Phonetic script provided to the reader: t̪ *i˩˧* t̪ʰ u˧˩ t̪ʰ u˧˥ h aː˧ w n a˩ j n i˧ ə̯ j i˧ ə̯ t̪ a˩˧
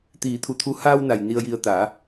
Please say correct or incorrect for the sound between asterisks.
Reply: incorrect